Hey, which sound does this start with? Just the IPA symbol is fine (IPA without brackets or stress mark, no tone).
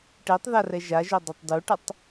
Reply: ʈ